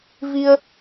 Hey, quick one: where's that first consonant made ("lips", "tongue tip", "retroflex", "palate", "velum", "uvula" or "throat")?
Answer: lips